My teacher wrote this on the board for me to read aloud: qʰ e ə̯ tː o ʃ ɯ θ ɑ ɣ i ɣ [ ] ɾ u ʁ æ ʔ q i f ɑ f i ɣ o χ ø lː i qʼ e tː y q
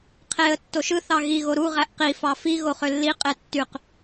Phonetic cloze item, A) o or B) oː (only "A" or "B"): A